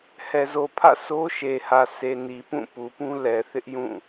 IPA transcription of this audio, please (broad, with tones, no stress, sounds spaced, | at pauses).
h ɛ˨ z o˨ pʰ ä̰˦˨ s o˦ ʃ e˨ h ä˨ sʰ e˨ n i˨ p ũ˦˨ p u˨ p ũ˦ l ɛ˨ θ ɪ˦ ʔ j ũ˦˨